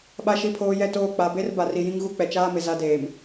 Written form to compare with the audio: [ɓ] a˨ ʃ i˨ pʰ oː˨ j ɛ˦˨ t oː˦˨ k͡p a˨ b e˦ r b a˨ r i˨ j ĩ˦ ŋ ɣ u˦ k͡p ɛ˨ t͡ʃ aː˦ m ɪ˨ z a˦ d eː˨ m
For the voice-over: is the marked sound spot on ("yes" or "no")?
yes